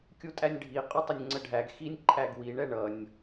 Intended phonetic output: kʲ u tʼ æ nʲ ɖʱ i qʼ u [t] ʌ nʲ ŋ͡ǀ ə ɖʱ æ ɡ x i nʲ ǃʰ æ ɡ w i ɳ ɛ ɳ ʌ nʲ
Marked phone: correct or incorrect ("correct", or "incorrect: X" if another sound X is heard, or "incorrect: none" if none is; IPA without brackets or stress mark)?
incorrect: tˤ